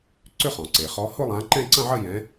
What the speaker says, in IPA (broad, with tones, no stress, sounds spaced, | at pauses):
ǀ ʏ˥˧ χ ɔ̃˩ ǀ e˩ χ ɔ˨˦ h ʊ˥˧ lˠ ã˨˦ ǃ ɛ̃˥˧ ǀ ɐ̃˥˧ ʕ ɐ˥˧ j ɛ̃˨˦